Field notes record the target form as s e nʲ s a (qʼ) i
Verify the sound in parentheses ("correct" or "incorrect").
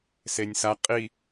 correct